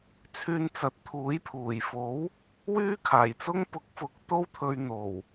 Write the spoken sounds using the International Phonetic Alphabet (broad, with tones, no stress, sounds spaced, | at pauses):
t͡sʰ yː˧ n t͡s ɐ˨˥ t̚ t̪ʰ uː˨˥ j pʰ uː˨˩ j f o˨˥ w | w yː˥ kʰ aː˨˩ j t͡s ʊ˥ ŋ p ʊ˨˥ k̚ f ʊ˨˥ k̚ t̪ o˥ w t̪ʰ ɵ˧ ɥ n̪ o˨˩ w